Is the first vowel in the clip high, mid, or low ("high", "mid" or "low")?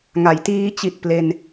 low